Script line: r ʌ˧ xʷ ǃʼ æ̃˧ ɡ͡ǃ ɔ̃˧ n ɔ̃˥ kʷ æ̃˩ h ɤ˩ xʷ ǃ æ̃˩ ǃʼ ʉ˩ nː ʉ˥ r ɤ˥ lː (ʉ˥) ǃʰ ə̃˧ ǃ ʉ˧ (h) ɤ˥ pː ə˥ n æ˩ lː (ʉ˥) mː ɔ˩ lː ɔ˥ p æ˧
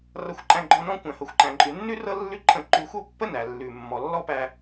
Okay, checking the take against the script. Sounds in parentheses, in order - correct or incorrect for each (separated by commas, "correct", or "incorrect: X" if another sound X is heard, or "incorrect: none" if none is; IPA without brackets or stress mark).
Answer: correct, incorrect: xʷ, incorrect: ʉ˩